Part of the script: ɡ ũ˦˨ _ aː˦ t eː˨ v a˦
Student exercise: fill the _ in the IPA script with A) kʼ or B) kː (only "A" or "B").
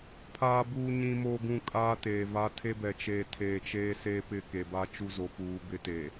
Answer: A